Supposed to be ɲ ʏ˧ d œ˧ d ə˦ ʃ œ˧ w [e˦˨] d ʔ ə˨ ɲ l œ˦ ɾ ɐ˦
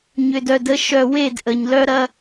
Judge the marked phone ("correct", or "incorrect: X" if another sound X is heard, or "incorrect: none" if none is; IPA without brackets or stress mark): correct